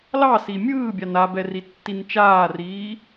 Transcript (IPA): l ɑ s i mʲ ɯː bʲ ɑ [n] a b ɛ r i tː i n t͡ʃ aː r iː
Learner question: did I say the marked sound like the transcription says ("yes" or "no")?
yes